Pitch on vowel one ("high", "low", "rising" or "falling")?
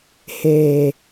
low